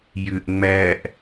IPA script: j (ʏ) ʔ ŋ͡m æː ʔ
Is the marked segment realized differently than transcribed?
no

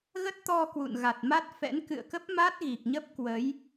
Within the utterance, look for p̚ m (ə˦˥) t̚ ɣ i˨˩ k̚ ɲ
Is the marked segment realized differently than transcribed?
yes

